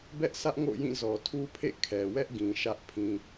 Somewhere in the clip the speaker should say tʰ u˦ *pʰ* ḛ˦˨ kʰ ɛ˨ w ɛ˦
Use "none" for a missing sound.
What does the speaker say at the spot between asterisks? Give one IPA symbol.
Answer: pʰ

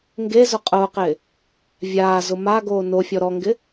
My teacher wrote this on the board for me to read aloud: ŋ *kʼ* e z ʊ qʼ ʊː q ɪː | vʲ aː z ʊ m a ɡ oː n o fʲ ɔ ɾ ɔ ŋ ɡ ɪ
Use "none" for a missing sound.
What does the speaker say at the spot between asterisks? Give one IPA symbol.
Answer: ɡ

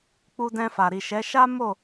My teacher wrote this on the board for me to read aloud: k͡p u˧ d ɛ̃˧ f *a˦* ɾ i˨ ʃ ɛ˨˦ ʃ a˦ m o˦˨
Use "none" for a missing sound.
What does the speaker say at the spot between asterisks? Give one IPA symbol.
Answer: a˨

